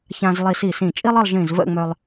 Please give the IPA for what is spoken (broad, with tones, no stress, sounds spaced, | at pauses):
ç ã˧ z lˠ i˧ s i˧˩ s ĩ˧˩ t͡ʃʼ i˥ lˠ ə˥˧ lˠ ʒ ĩ˧˩ z v ə̰˥˧ ŋ͡m œ˧ lˠ